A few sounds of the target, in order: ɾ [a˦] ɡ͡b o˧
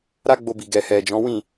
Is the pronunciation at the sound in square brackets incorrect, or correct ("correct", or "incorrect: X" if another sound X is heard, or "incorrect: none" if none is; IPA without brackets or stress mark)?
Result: correct